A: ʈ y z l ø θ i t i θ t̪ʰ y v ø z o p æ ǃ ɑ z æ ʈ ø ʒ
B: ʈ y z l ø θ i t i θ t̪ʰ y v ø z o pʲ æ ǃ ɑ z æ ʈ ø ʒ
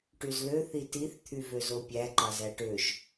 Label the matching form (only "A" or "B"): B